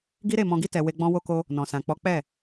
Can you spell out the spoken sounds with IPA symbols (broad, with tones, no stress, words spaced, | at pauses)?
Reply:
ɡi˦ɾe˦˨mɔ̃˧ɡi˦ tɛ˧we˦ɡ͡bɔ̃˦ wo˧ko˧ | nɔ̃˨sã˨k͡pɔ˨˦ k͡pɛ˦˨